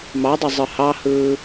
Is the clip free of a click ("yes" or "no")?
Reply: yes